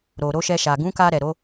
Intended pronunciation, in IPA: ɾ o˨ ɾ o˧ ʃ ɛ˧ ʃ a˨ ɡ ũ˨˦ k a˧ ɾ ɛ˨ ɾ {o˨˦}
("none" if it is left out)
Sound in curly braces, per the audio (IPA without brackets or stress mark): o˨˦